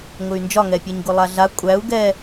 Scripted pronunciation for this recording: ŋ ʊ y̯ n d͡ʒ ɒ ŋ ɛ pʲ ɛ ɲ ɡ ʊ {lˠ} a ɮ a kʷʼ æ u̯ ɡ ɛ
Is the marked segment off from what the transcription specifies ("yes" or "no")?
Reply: no